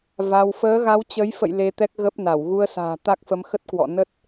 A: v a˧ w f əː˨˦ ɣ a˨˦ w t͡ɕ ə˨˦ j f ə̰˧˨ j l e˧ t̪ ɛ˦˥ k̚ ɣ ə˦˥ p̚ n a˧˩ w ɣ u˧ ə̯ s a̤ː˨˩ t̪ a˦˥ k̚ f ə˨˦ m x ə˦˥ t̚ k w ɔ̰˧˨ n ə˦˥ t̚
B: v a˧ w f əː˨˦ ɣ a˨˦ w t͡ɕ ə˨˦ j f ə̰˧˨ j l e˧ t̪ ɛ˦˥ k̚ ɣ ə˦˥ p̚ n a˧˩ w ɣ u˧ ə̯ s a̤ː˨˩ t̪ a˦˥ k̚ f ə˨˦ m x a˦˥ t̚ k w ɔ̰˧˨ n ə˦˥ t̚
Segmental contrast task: A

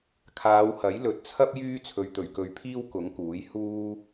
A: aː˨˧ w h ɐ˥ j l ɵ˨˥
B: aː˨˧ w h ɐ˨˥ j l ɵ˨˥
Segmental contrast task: B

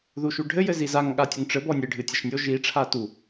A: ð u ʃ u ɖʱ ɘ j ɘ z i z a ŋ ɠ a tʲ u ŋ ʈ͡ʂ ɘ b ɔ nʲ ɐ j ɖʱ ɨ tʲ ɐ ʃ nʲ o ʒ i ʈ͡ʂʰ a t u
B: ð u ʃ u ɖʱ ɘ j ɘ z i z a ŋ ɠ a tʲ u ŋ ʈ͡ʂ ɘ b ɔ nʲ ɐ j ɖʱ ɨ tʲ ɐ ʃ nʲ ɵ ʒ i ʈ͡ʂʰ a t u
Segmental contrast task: A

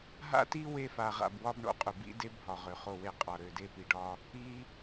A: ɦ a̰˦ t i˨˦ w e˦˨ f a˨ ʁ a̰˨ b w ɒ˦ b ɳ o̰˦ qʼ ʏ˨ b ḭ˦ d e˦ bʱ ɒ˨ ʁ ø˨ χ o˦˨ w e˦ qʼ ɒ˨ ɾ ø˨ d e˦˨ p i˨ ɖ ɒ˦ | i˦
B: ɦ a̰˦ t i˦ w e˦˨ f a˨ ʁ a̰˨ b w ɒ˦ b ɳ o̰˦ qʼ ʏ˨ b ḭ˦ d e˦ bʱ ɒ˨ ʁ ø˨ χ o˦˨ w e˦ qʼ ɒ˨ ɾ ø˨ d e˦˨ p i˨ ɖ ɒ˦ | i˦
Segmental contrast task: B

